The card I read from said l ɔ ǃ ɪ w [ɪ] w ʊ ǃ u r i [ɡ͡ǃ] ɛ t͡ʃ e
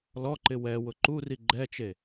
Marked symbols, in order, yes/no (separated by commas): no, yes